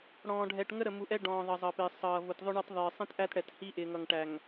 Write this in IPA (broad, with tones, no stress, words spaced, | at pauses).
ɽɔ̃ː˨ɖʱɛ˨ʈ ŋə˦ ɾə˨mu˨ʔɛ˦ ɖɔ̃ː˨ðˤʌ˨zˤʌ˨pɪː˨ sˤʌː˨ vʊ˨tðˤʊ˦ɳɑ˦tðˤɪː˨ sˤĩ˦tʔæ˦t ɽɛ˨thi˦ ʔɪː˨ŋʌ˨ŋ ʈæ˨ŋ